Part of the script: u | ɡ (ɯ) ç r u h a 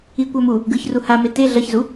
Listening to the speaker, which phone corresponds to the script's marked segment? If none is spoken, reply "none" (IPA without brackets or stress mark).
ɯ